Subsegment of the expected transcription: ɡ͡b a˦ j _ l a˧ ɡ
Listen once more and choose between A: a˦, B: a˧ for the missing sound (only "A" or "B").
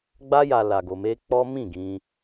B